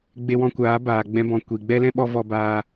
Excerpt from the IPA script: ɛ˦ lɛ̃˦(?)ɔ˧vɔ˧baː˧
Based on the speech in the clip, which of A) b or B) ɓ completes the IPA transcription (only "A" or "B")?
B